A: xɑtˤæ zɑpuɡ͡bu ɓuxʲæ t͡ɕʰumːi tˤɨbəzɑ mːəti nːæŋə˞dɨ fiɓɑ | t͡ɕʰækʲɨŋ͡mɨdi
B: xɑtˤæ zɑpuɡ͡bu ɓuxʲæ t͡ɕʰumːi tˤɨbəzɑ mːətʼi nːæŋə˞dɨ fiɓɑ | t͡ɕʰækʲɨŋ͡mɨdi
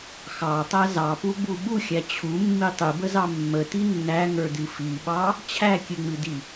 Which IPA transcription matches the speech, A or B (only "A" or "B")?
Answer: A